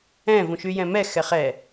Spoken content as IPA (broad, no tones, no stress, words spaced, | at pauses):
ɛ̃ vũʃyjɛ̃mɛ xɛχɛ